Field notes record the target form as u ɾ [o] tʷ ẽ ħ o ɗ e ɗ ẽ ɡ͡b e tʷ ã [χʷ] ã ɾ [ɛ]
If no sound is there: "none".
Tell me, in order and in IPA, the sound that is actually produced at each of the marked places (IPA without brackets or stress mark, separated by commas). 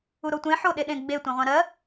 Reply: o, ʁʷ, ɜ